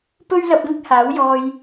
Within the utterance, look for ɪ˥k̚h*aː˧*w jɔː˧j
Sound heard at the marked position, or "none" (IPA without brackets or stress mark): aː˨˥